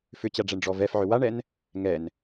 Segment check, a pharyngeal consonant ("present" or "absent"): present